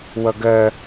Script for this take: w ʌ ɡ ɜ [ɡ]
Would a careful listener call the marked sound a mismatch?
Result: yes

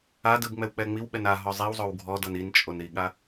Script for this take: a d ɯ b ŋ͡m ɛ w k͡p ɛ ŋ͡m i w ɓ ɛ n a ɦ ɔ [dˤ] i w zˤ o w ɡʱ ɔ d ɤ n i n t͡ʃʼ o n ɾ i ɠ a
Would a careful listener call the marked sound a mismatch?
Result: yes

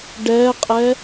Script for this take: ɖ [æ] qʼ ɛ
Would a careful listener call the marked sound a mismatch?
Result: yes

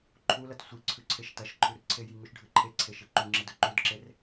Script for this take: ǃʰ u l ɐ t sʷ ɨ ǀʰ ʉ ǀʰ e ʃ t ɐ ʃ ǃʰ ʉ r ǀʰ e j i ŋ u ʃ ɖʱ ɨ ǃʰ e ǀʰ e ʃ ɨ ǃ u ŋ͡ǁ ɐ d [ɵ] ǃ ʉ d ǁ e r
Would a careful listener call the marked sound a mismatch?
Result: no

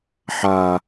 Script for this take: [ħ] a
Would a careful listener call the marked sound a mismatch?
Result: no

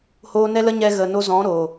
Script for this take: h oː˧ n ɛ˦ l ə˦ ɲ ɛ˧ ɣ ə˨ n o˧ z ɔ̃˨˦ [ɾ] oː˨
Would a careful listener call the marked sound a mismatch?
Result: no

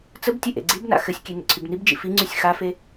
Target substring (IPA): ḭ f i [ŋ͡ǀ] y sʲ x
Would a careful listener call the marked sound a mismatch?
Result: no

